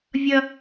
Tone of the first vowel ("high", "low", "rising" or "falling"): high